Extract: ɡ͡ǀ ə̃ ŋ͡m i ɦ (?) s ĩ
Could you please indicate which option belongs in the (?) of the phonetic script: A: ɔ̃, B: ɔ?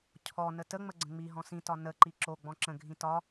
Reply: A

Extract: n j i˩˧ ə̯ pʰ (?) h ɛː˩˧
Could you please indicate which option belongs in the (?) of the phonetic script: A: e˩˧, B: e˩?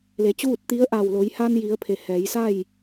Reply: A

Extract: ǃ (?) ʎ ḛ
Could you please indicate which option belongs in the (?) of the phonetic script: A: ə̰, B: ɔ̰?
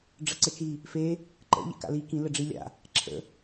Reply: A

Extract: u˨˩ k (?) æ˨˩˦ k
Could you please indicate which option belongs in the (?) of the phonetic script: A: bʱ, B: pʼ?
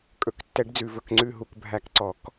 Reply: A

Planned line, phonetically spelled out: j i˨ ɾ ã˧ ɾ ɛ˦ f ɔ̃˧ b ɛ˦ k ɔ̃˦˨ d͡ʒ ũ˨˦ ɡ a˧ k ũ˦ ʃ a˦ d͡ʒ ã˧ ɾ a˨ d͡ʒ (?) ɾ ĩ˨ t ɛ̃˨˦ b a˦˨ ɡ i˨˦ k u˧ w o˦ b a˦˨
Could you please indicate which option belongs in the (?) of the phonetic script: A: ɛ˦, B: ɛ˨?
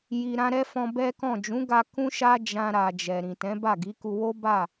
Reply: B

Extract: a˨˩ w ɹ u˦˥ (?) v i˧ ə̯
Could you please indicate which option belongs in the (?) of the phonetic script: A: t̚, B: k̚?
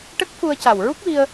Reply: B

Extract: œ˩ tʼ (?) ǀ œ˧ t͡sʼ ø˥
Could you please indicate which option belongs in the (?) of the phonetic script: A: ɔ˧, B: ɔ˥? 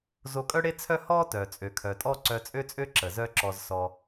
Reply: B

